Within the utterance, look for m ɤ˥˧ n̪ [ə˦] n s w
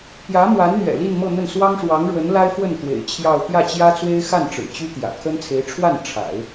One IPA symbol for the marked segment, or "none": ə˥˩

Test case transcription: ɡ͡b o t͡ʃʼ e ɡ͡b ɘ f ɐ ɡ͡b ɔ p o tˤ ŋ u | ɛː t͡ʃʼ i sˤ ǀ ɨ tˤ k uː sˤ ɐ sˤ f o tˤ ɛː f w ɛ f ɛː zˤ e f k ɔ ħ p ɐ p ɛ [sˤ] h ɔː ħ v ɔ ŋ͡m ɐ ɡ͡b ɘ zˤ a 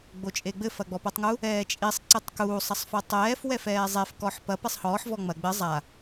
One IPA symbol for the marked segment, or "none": sˤ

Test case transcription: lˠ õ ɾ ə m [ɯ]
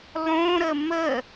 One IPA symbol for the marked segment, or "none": ə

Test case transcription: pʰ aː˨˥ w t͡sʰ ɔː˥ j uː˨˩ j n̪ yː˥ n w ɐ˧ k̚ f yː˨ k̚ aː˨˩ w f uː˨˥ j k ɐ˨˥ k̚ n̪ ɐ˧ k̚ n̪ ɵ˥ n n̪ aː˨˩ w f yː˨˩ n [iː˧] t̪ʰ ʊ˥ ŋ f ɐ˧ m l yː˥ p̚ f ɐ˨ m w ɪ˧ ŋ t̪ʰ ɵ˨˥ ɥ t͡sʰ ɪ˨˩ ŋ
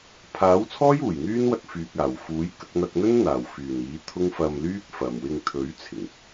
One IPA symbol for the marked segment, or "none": iː˨˥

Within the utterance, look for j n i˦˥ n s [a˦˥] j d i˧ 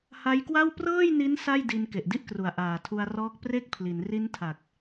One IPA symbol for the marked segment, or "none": a˥˩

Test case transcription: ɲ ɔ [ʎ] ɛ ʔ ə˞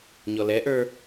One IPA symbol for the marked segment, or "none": l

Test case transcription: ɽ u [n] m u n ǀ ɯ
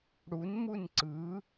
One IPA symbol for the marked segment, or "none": n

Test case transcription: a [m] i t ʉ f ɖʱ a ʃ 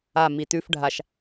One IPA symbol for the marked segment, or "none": m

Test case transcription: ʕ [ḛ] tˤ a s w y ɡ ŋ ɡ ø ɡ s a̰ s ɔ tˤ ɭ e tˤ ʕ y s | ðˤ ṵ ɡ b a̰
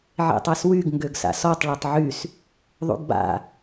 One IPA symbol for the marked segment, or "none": ḛ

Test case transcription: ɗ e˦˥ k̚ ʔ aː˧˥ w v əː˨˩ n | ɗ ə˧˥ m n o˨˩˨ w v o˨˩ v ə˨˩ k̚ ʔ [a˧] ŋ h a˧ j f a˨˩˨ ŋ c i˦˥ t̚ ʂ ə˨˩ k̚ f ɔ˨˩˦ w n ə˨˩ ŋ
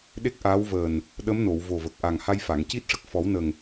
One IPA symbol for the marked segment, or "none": a˨˩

